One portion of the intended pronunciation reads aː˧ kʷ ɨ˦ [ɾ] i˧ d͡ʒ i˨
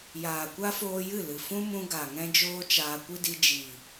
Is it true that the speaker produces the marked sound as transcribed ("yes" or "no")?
no